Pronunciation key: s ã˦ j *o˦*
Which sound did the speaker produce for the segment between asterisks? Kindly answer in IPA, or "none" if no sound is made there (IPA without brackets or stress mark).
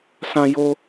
o˦